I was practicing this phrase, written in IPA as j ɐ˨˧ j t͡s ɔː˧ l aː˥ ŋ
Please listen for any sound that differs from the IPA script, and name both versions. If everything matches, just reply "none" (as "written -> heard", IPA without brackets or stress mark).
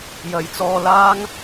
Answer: none